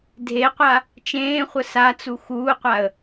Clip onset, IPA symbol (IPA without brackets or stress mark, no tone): dʱ